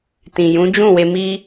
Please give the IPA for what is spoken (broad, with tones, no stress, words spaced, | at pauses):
tĩ˨jũ˨˦ d͡ʒũ˦˨we˧mi˦